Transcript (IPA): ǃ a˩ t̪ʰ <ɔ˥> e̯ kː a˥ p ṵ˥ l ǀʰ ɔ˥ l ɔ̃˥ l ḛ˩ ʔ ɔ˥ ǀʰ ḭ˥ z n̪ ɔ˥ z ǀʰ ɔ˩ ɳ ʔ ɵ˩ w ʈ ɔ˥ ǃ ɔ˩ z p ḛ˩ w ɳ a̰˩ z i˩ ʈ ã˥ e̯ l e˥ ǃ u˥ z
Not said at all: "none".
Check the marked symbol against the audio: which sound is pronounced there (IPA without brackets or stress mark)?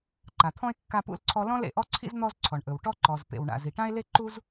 ɔ̃˥